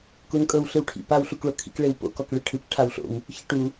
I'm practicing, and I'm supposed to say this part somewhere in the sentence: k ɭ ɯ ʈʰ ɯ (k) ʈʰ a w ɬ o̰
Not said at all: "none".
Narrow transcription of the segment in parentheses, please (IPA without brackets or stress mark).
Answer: k